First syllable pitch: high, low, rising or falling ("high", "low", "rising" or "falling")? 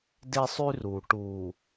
high